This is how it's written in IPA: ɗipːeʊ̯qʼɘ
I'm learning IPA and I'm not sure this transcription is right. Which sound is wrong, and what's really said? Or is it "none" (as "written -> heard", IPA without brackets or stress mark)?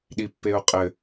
none